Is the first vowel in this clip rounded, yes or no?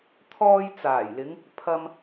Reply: yes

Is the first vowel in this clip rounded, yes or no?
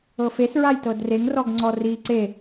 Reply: no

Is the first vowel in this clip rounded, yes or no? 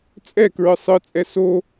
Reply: no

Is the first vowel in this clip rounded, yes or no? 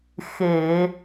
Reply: no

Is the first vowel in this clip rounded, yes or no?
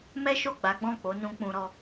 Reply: no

